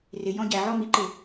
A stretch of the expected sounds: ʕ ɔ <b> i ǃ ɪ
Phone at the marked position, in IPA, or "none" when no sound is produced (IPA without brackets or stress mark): m